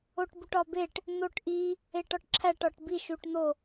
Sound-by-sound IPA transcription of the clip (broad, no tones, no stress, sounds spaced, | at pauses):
o ʈ b u ʈ ɒ b e ʈ | n̪ o ʈ ʔ i | e ʈ ɒ ʈ ǁʰ æ ʈ ɒ ʈ b i ʃ u ʈ n̪ o